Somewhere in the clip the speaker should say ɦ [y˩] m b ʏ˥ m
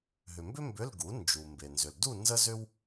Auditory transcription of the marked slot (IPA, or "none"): ʏ˩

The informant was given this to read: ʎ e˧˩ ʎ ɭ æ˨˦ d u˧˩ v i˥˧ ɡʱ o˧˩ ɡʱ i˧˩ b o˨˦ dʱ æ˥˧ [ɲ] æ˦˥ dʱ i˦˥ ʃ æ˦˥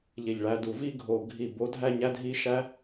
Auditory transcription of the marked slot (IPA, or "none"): ɲ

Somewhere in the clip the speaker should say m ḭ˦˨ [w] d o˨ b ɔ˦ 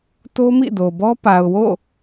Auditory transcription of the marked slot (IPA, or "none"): none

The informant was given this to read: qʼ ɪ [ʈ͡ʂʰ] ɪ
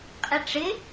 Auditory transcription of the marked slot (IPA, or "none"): ʈ͡ʂ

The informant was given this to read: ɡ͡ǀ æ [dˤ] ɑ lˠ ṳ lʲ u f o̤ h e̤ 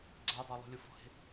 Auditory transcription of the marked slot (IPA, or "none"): dˤ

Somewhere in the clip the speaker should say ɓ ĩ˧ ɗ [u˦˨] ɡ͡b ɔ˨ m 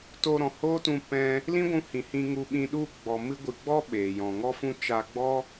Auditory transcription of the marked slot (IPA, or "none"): u˦˨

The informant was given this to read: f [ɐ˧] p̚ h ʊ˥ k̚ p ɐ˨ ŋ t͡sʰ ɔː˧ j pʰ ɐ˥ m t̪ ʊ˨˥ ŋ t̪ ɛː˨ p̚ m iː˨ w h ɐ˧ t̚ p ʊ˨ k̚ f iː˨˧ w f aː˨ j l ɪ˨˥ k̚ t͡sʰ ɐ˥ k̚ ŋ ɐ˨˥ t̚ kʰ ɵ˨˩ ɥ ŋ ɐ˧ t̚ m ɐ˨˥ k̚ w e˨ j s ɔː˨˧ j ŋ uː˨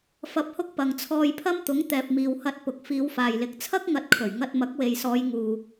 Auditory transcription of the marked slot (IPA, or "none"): ɐ˧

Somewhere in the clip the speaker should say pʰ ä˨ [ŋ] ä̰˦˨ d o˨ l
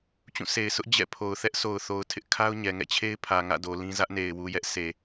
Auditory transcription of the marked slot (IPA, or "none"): ŋ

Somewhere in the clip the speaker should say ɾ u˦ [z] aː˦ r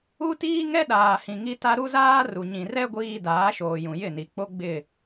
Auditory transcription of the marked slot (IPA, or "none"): z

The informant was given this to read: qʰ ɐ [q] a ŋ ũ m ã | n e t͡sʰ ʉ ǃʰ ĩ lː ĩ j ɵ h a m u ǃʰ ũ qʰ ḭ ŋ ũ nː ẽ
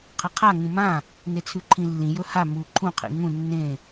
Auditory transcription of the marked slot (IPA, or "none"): qʰ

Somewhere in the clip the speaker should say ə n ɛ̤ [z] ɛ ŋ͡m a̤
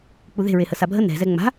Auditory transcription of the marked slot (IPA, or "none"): z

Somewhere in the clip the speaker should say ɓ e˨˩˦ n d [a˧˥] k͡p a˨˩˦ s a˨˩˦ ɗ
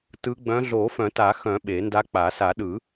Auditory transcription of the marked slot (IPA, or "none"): a˧˥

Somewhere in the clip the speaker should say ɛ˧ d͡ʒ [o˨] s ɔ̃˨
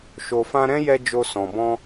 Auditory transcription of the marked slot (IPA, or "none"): o˧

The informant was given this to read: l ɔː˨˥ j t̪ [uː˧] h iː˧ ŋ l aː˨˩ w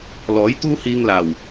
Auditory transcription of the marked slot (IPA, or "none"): uː˥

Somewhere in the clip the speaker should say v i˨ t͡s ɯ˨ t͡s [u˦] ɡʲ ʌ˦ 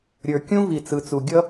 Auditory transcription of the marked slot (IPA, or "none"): u˨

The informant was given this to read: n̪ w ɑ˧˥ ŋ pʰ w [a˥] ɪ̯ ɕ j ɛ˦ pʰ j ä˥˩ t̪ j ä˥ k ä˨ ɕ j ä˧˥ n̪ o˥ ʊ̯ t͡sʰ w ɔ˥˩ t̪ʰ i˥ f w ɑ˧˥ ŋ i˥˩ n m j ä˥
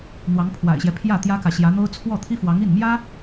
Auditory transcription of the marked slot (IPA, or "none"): a̰˨˩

